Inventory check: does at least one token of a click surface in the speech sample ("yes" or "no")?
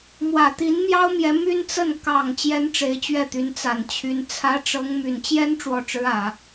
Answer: no